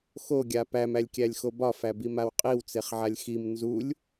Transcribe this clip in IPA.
xoɡʲa pæmælʲkʲælʲxo bɒfæbimaw qʼiwt͡seχʕalʲ xim nzulʲ

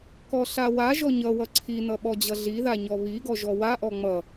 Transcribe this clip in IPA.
kɔɬawaʒɔ ɲʌ wʌǀʰinʌ ɓɔd͡ʑʌɮiða ɲɔβiɡɔ ʒɔwaʔɔ ŋ͡mʌ

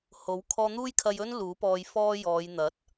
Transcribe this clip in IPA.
ho˨˥w kʰɔː˧n̪uː˥jkʰɐ˧jɵ˥n luː˨˥pɔː˧jfɔː˥jɔː˨˧j n̪ɐ˨˥t̚

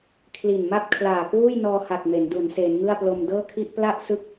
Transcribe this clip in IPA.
kʰli˨˩nma˥˩p̚kʰlaː˨˩kwuː˥˩j nɔː˧ha˨˩k̚ me˩˦ndu˩˦n seː˩˦nŋɯ˥˩a̯plo˧m dɤː˥˩kʰi˥˩ʔ pla˥˩ʔ sɯ˥˩k̚

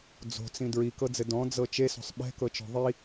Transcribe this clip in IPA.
d͡zo̤t͡sĩ dɹikɤd͡zɘ dɔ̃d͡zɤ t͡ʃeso̤sˤ ɓɛ̤kɤt͡ʃɔ̤ ðˤi

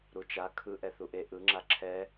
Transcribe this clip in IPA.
ɾut͡ʃa kʰɯʔɛ θuʔe ʔɯŋ͡ǁa ǁʰɛ

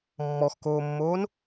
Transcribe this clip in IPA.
mːɔxkoːmːoːn

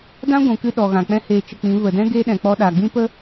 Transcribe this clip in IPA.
dã˦ɡʷũ˨kɨ˧ ɗɔ˨ɣã˨k͡pɛ̃˦ heː˧t͡ʃə˧k͡pĩ˨˦ və˨dɛ̃˦ ɡeː˦ ɗɛ̃˨k͡pɔ˧ ɗaː˨ɡ͡bĩ˦pə˦

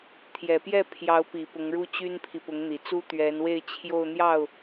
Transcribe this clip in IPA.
t̪ʰjɛ˨˩pjɛ˥˩pʰjɑ˧˥ʊ̯pi˨˩ pʊ˧˥ŋɻu˥t͡ɕy˥npʰi˨ pʊ˧˥ŋn̪i˨˩t͡su˥ t̪ɥɛ˧˥nwe˥˧ɪ̯t͡ɕʰjo˥˧ʊ̯ n̪jɑ˥˩ʊ̯

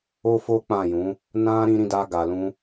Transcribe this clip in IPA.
o˦fo˦k͡pã˦˨jũ˨˦ | nã˦ ɾĩ˦ɾĩ˦da˦ɡa˧ lũ˧

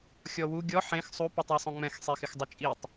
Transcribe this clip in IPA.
xʲɔwu ɡʲɔ ħẽx sˤu putˤwɪsˤõŋ͡mɛ̃x sˤexɪxdˤɪt͡ʃʼitˤ

